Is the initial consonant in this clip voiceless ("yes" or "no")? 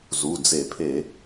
no